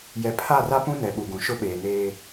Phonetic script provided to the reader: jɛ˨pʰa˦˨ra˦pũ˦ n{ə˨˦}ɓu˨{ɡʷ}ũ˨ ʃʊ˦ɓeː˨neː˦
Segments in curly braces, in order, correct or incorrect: incorrect: ɛ˨˦, incorrect: ɡ

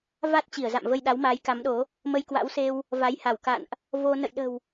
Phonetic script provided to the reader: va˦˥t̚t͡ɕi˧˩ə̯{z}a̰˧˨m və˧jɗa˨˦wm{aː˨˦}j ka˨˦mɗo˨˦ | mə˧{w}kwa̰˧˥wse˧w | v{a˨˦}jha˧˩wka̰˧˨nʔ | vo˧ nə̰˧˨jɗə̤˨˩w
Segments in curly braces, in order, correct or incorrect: correct, correct, incorrect: j, correct

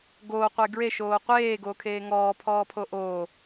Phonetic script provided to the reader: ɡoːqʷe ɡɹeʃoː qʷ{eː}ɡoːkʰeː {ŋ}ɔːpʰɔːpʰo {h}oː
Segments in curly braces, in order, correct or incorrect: correct, correct, incorrect: ʔ

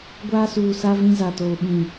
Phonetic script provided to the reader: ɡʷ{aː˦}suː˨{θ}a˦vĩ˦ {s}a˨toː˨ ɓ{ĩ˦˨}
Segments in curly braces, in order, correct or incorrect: correct, incorrect: s, incorrect: z, correct

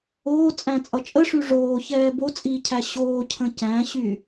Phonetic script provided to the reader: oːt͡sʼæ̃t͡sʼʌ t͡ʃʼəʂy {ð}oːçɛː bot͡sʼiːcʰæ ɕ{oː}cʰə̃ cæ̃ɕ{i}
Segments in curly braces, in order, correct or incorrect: incorrect: ʐ, correct, incorrect: y

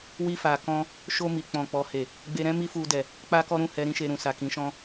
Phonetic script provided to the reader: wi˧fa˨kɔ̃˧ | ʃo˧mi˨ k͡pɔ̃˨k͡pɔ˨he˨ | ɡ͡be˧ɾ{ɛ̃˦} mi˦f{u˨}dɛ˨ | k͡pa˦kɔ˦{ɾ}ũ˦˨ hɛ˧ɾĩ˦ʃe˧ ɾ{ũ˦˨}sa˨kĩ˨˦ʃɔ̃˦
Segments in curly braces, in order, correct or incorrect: correct, incorrect: u˧, correct, incorrect: ũ˨

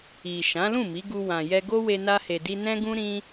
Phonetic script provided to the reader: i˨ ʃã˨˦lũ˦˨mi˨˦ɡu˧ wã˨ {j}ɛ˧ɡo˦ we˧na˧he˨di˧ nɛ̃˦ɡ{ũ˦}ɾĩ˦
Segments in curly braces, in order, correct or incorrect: correct, correct

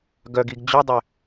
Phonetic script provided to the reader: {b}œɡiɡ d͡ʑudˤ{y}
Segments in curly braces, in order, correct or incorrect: incorrect: ɡ, incorrect: ʏ

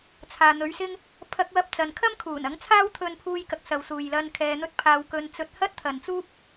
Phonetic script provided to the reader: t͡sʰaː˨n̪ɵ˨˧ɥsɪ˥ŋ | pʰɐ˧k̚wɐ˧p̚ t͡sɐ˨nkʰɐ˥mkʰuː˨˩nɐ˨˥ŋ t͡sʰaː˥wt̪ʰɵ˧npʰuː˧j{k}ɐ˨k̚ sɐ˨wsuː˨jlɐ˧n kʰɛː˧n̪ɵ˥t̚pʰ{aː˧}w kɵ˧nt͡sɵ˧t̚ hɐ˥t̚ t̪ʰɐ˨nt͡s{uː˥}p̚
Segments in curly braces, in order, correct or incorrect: correct, correct, correct

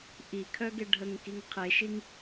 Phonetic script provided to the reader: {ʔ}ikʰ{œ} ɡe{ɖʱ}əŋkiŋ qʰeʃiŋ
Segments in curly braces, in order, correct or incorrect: correct, correct, correct

